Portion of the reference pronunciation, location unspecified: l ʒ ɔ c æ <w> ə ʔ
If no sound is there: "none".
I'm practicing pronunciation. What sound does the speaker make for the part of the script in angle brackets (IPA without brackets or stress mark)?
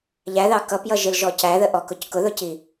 ð